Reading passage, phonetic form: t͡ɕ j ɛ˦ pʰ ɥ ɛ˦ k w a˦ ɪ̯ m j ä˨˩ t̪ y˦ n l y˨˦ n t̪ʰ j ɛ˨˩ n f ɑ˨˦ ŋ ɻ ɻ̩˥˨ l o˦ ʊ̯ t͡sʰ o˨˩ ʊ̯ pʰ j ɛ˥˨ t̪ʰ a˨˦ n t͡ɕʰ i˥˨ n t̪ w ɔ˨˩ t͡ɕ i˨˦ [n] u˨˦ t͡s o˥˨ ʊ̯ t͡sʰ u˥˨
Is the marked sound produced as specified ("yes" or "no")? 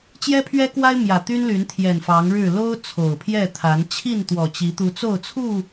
no